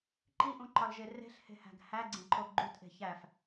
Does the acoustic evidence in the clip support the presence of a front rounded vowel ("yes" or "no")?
no